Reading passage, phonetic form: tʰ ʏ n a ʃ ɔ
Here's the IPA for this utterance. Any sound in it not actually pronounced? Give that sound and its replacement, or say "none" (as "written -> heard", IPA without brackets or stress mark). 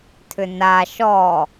none